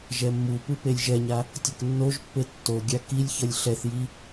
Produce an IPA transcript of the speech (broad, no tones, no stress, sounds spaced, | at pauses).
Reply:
ʒ ɛ mː u p ɯ p e lʲ ʒ ɛ ɲ a | tʲ ʌ k nː o ʒ pː e tː o ɡʲ a k i lʲ ç ʌ lʲ ɬ ɛ θ j i